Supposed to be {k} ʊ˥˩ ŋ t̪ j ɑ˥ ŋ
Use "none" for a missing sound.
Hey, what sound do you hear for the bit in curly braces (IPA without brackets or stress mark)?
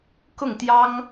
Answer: k